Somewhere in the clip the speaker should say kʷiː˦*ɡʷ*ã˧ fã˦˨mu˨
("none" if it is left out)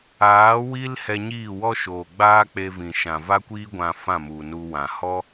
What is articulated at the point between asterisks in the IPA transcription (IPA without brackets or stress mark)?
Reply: ɡʷ